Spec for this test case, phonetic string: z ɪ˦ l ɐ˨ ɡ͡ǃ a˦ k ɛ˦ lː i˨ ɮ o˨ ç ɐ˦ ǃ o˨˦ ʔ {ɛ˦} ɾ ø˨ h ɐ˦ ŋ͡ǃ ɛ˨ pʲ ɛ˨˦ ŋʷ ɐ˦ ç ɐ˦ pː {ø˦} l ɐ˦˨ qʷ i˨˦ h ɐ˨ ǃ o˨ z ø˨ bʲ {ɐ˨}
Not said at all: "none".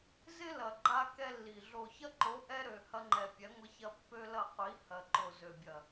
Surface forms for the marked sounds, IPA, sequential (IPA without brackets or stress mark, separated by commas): ɛ˦, ø˦, ɐ˨